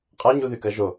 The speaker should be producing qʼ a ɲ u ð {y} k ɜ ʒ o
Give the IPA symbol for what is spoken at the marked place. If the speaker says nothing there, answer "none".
y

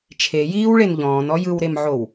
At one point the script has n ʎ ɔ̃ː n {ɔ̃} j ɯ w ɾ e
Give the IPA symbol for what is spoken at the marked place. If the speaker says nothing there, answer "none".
ɔ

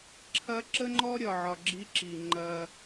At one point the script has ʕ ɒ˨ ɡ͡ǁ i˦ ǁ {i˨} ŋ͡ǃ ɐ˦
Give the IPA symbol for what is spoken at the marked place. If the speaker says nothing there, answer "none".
i˨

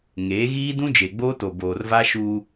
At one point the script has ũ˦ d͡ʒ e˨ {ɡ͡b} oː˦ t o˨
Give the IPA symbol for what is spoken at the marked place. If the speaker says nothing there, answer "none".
ɡ͡b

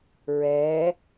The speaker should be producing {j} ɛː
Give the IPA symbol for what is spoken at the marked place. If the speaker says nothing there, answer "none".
ɹ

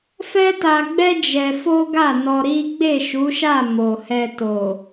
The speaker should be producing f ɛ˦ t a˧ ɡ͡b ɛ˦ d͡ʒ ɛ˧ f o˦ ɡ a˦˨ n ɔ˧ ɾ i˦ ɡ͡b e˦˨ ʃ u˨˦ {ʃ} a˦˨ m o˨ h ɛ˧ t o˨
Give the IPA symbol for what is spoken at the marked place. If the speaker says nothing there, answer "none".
ʃ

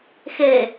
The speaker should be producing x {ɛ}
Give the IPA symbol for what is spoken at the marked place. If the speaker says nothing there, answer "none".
e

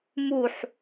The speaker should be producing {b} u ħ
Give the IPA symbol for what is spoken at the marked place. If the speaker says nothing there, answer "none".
m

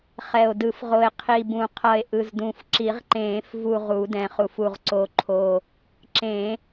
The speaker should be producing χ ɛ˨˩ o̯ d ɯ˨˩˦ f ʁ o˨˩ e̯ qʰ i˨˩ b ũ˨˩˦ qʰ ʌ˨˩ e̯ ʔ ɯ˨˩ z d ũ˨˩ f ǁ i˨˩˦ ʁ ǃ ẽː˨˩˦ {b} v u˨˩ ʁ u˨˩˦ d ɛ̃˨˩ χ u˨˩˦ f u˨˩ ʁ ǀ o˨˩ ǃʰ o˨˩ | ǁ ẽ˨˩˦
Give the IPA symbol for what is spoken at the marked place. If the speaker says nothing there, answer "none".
f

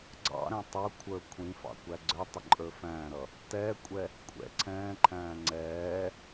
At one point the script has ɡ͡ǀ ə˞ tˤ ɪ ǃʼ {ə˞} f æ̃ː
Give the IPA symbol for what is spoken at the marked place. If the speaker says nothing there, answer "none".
ə˞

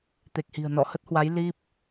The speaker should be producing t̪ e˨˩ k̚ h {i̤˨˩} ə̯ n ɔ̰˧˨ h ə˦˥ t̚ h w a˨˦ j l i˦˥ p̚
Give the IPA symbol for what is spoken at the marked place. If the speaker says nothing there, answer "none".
i̤˨˩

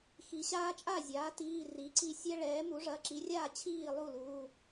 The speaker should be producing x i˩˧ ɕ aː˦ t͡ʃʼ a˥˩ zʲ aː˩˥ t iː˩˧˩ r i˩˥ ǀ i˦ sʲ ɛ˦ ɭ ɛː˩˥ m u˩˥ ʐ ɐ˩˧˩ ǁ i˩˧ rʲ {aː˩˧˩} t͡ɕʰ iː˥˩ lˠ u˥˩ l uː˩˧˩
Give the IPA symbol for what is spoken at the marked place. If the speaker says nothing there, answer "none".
aː˥˩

